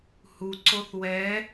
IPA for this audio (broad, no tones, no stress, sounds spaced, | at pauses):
h u ǀ o θ w ɛ